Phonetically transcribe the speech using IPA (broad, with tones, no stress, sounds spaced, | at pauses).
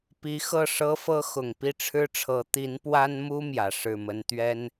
p i˧˥ x ɤ˥˩ ʂ ɤ˥ f ɤ˥ x ʊ˨˩ ŋ p i˥˩ ʈ͡ʂʰ ɻ̩˥ ʈ͡ʂʰ ɤ˧˥ t̪ i˧˥ n p w a˥ n m u˥ m j ä˨˩ ʂ ɻ̩˥˩ m ə˥ n t̪ ɥ ɛ˥ n